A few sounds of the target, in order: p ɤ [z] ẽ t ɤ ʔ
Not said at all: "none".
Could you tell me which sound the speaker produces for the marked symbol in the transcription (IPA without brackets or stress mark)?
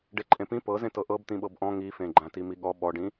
z